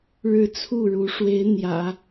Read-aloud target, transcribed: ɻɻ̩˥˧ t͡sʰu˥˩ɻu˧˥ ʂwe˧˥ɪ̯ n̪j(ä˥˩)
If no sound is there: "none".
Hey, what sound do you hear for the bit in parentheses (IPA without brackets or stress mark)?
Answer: ä̰˨˩˦